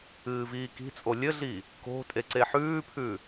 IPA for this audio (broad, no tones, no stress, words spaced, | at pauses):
ɨːviːki̤t͡sʼo lʲɘɮi | ko̤ tʼeǀeħʉːpʰʉ